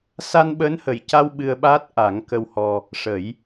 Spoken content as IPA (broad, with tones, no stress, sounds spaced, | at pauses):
s a˧ n ɓ əː˧˥ n h ə˨˩ j c a˧ w ɓ ɨ˧ ə̯ ɓ aː˦˥ t̚ ʔ a˨˩˦ ŋ k ə˧ w h ɔ˧ | ʂ ə˨˩˦ j